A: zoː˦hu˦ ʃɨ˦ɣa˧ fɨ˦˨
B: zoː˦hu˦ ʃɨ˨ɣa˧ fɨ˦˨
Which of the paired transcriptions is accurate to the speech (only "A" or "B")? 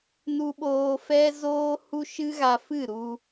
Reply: A